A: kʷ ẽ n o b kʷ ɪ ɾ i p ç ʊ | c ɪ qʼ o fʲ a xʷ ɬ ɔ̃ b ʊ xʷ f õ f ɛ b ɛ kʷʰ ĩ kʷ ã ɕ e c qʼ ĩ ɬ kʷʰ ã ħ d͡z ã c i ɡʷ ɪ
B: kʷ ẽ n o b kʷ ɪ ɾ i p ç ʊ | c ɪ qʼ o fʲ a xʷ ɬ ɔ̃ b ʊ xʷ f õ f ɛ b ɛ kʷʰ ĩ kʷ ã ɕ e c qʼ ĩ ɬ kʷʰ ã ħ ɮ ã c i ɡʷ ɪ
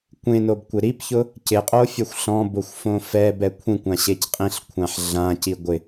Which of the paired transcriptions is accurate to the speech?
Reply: B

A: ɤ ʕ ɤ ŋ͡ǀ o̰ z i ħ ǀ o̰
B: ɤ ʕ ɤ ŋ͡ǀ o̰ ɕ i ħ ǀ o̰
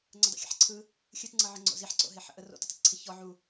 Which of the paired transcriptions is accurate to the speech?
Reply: A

